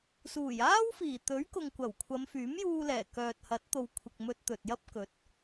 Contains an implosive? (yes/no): no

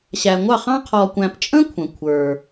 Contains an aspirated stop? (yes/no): yes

